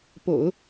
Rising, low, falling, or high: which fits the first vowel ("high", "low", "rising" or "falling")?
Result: low